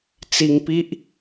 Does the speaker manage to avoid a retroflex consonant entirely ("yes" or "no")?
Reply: yes